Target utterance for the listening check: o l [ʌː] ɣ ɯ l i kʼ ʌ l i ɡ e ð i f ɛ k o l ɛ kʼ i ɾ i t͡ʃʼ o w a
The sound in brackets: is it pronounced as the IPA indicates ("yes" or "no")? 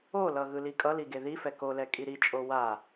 no